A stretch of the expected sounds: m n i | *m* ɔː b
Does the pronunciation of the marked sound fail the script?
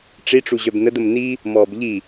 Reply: no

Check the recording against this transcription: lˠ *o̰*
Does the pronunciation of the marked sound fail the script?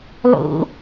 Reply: no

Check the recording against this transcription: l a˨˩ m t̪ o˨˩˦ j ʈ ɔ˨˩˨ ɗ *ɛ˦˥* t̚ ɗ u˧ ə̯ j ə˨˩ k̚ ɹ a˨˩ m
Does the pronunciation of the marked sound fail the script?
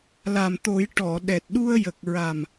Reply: yes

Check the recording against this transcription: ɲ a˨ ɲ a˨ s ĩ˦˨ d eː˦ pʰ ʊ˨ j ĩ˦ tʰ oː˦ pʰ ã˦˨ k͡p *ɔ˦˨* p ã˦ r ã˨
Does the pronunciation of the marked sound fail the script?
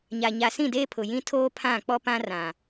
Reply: yes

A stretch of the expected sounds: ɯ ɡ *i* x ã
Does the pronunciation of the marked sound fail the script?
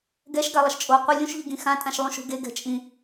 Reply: yes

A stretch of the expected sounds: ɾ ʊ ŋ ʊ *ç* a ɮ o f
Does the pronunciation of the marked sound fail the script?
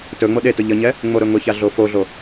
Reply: no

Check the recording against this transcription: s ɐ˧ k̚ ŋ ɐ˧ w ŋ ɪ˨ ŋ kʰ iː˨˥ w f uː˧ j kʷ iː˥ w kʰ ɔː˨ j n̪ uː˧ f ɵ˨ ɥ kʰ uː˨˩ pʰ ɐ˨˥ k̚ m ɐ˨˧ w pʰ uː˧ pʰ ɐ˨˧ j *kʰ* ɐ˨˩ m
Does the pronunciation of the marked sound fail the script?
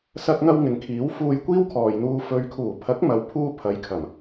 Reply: no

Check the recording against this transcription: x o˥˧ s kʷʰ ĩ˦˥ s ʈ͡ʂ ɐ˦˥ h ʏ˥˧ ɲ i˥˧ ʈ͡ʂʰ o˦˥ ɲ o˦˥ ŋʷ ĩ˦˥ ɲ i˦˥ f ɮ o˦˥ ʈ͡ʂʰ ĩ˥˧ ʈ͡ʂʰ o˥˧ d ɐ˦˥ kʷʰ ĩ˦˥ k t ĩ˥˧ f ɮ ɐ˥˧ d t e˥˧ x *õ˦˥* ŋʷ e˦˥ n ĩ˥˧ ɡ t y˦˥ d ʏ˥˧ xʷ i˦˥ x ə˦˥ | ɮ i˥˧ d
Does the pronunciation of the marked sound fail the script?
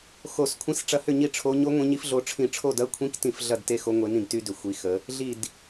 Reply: yes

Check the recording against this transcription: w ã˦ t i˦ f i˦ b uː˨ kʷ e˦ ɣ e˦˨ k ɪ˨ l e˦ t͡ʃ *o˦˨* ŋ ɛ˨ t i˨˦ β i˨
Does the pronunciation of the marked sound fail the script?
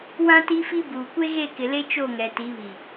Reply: no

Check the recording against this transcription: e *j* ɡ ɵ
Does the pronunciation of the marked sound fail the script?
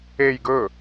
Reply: no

